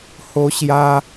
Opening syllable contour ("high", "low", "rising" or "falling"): high